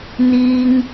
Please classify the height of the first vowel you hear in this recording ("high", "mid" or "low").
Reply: high